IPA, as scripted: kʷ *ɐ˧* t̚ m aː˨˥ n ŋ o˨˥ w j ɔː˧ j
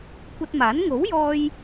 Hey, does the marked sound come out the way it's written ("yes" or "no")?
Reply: yes